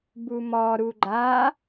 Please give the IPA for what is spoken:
bumɔɾu ɡ͡ǃa

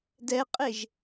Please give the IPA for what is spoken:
dɛqʼeʒ

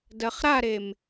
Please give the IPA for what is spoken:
dɜχɾaɾem

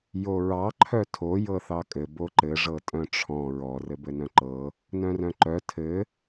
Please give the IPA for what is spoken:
joɹɑ ǃʰœtʰo jɤθɑkʼɘ boǃɘ ʐɤtʼœ̃ʈ͡ʂʰɔ̃ ɹɔ rɘbɘnœ̃ǃɤ | nœ̃rœ̃ǃœ tʰɘ

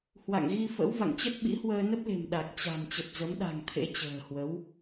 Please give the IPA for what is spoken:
hwa̰˧˨ŋɣi˧fə̰˧˥w va̰˧˨ŋt͡ɕə˦˥t̚ɓḭ˧˥hwəː˧ nə˦˥p̚le̤˨˩m ɗa˨˩k̚t͡ɕa̤˨˩m t͡ɕə˨˩p̚zə˨˦mɗa̤˨˩ŋ t̪ʰḛ˧˥t͡ɕə̤ː˨˩hwə˨˦w

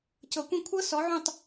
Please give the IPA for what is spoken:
cɤ˨˩˦kʷĩ˦˨ kʷʰɤ˦˥ sɔ˨˥ʕũ˦˨tˤ

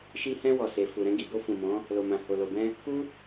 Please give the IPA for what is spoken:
ʃi˧hɛ̃˧wɔ˨ se˨fu˨ ɾɛ̃˧ɡi˨bo˧ fũ˨mɔ̃˨˦ | lo˨mã˨ ho˨lo˨bɛ̃˧ | ku˦

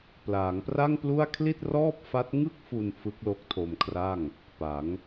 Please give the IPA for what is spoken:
plaː˩˦ŋpra˥˩ŋplu˥˩a̯ kʰli˥˩t̚rɔː˥˩p̚ fa˦˥t̚ŋɯ˥˩k̚fu˧n fɯ˦˥k̚lo˦˥k̚tʰo˧mkʰra˥˩ŋ | pa˩˦ŋ

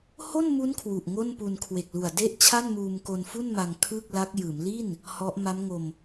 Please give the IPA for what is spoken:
ho˥˩nmu˦˥n kʰwu˨˩ʔŋo˥˩npu˧n kʰwe˨˩k̚ lu˨˩a̯de˥˩ʔt͡ɕʰa˥˩nmuː˧m ko˧nfu˥˩nma˧ŋ kʰɯː˥˩k̚la˦˥k̚ jɯː˩˦mli˥˩n | hɔ˦˥ʔ ma˦˥mŋo˧m

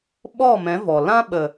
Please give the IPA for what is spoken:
ɓɔ˦˨mɛ̃˨˦ vɔ˨ lã˦ɓə˨

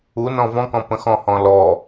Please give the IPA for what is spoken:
unɔ̃ vɔ̃kɔ̃ pə̃xɔ̃hɔ̃ lɔ

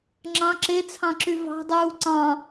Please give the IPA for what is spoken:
ŋ͡ǁɑ̃ ǁet͡sʰɑ̃ǁy vɑ̤dˤuː ǀɑ̃

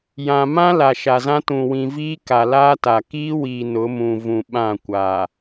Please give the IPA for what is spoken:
jã˨ mã˦ la˨ʃa˨zã˦tũ˨ wĩ˨viː˦ ka˨laː˦ta˨ kiː˦wiː˨ nʊ˨˦mũ˨vũ˨ ɓã˦˨kʷaː˨

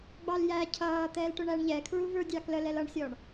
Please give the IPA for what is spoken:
ɡ͡bɑljæ cʰʌː t̪ɛːlʈʊɳæɳ ʎɛkʰɹu və˞dʲɑklə lɛlʌɳsʲɔɳ

